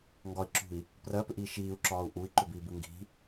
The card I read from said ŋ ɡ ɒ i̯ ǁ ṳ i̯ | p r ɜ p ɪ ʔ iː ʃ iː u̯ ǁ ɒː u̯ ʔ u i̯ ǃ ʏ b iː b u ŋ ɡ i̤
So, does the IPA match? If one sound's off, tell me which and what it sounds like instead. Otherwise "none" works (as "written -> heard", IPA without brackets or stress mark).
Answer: ɪ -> ʏ